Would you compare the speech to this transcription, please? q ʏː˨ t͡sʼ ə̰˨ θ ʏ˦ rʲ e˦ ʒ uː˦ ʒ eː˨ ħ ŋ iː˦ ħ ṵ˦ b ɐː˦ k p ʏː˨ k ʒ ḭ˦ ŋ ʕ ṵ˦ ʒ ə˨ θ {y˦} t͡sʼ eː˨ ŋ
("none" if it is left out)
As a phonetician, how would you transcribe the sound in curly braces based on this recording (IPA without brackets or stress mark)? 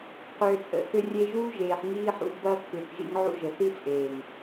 i˦